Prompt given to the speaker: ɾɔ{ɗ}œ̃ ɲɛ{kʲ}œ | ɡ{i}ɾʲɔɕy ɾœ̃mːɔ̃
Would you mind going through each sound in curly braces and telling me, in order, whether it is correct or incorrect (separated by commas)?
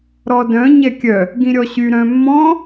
incorrect, correct, incorrect